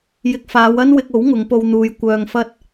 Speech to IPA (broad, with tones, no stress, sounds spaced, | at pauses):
j ɪ˧ k̚ f aː˨˧ w ɐ˥ n w ɪ˧ k̚ o˨˥ w ŋ ʊ˨˧ ŋ p o˧ w n̪ uː˨˧ j kʷ œː˧ ŋ f ɐ˥ t̚